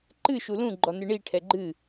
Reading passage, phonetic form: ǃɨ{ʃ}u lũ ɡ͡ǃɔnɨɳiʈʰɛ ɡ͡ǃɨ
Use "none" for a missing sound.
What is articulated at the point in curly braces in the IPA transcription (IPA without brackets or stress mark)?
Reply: ʃ